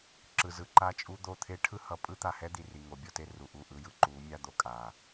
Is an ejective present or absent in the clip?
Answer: present